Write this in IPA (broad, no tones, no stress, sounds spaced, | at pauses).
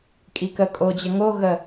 kʼ i k ə kʼ o d͡ʑ ə ŋ o ɣ ə